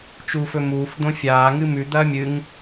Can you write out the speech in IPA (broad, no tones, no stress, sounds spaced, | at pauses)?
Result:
t͡ʃ uː f ɵ m uː f d̪ õ fʲ aː ŋ ɨ m ʉ d̪ ɐː mʲ ɨ ŋ